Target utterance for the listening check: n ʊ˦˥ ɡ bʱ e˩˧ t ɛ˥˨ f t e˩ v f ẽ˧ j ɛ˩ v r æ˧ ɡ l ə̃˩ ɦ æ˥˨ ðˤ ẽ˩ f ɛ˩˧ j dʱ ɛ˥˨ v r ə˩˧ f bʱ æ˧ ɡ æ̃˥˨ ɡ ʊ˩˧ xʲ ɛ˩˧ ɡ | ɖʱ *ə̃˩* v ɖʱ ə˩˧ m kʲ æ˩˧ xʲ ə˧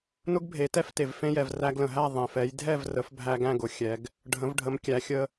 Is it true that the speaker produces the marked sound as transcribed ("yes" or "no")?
no